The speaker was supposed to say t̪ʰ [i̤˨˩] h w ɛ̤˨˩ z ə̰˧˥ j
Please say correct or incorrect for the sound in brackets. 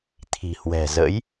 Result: correct